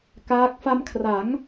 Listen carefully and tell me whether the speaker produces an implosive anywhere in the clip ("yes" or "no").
no